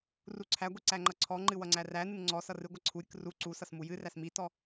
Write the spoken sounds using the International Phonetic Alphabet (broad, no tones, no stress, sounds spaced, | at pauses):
r u ǀʰ æ ɡʷ i ǀ æ ŋ͡ǃ ʌ ǀʰ ɔ ŋ͡ǃ ɨ w ʌ ŋ͡ǀ æ r æ n ɨ n ŋ͡ǀ ɔ s ʌ r ɨ ɡʷ ʌ ǀʰ u ɾʲ ɨ k r u ǀ u s ʌ s m u j ɨ r æ s m i t ɔ